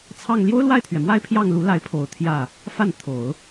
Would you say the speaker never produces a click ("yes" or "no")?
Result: yes